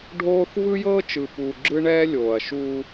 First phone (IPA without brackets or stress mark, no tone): ɖʱ